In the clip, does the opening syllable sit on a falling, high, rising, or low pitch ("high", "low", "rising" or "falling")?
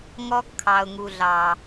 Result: high